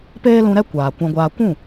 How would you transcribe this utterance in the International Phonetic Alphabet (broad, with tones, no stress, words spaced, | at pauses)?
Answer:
peː˦lũ˧ɾɛ˦ kʷaː˨ kʷã˧ɡʷaː˧ kʷũ˦˨